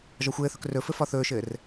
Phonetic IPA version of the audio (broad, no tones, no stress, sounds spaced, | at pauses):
ʒ ɒ xʷ ɘː θ ɵ k r ɵ f ɘ f ɒ θ ɵː ʃ ɘː r